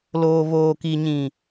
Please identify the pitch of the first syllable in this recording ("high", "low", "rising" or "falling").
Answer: low